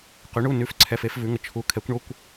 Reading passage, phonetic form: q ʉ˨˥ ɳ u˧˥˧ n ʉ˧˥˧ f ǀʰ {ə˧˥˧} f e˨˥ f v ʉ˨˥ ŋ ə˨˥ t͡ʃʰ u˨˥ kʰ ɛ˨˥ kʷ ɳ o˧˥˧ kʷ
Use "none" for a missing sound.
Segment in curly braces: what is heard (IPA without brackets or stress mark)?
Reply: ɛ˧˥˧